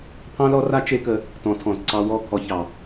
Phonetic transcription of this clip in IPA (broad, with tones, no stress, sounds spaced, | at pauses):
pʰ ɑ̃˦ l ɔ˦ r a˦ t͡ʃ e˦ k ə˧ | t ɔ̃˨ tʰ ɔ̃˨ z ǀ ɑ˧ w ɔ˦˨ kʰ ɔ˧ ç ɑ˨